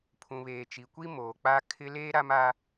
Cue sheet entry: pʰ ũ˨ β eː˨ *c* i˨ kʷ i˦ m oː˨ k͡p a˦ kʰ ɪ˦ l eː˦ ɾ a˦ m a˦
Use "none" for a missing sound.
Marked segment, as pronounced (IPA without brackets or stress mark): t͡ʃ